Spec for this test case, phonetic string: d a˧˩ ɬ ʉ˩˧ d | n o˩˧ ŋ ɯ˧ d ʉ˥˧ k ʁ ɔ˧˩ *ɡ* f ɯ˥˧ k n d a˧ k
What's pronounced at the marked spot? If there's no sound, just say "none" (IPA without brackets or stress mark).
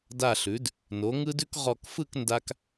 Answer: k